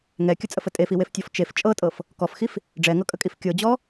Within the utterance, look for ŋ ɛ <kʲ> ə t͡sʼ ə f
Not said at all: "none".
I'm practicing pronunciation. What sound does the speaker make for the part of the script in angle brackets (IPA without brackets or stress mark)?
kʲ